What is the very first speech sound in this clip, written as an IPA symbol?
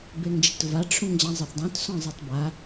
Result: b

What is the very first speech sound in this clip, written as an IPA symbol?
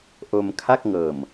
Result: ʔ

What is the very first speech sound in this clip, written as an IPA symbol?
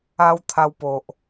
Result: a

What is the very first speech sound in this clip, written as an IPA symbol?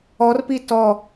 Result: ɔ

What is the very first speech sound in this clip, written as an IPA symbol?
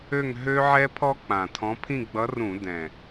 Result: ø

